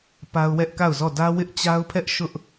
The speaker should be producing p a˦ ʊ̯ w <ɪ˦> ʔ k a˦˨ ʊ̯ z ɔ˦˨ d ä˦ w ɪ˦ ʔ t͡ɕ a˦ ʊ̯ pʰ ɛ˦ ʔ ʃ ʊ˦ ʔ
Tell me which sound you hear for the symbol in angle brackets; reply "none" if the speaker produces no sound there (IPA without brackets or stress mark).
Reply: ɛ˦